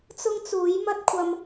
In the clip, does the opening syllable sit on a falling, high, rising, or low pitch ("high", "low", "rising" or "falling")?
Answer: high